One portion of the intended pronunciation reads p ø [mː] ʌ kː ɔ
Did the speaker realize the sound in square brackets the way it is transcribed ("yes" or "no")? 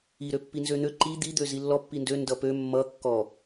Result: yes